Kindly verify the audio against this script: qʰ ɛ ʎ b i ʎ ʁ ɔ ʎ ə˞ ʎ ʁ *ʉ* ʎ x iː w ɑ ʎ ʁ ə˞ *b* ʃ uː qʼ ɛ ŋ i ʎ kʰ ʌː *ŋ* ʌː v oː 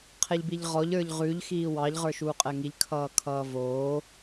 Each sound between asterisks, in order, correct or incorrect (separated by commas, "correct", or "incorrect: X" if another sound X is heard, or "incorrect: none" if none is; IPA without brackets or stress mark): correct, incorrect: none, incorrect: kʰ